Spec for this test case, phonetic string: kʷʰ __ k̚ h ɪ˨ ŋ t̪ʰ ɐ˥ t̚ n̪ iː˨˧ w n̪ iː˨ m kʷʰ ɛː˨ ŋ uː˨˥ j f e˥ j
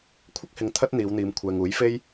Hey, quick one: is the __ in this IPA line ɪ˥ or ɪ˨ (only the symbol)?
ɪ˥